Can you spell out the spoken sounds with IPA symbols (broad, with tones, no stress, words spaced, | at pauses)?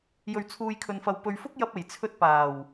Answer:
jɵ˨ɥt͡sʰuː˨jkʰɵ˨nfɐ˨w pɵ˨ɥfʊ˥k̚jɐ˧p̚e˨˩j t͡sʰɵ˧t̚paː˨˩w